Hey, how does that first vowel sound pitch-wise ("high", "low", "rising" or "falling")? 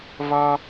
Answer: low